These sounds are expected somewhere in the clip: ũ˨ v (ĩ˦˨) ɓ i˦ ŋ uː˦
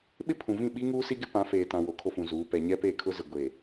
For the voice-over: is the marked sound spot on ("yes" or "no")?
yes